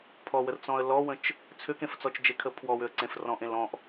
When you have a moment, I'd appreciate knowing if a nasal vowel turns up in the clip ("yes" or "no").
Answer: yes